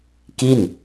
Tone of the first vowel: falling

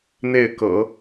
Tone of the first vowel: falling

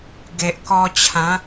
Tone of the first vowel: low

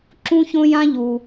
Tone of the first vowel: high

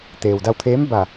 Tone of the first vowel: low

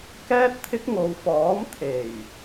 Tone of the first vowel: high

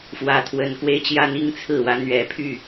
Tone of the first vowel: low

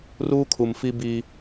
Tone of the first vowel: high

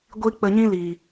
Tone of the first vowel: high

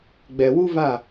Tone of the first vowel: low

